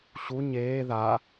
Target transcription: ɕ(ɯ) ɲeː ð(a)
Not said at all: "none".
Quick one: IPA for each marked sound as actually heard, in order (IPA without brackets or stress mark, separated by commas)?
u, a